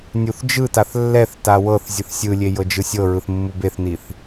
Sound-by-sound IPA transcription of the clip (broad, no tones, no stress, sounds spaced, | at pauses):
nʲ u θ d͡ʒ ɯ t a θ lː ɛ θ t a w ɤ θ zʲ ɯ θ sʲ ɯ lʲ e j ɤ d͡ʒ ɯ sʲ ɤ ɹ ɯ θ mː u b e θ n i θ